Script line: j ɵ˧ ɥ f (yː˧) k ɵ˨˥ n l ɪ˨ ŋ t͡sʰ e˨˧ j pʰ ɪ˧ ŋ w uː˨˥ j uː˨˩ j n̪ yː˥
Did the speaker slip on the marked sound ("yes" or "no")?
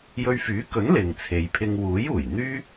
yes